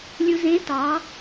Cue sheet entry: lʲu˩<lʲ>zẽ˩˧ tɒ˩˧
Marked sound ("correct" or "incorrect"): incorrect